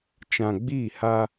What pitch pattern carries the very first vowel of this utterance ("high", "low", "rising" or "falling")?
low